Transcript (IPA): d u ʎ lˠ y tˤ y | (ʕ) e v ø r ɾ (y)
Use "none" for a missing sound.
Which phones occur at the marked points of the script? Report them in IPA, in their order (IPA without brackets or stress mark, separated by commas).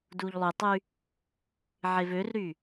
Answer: ʕ, y